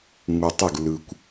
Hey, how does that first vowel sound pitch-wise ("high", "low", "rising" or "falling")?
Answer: low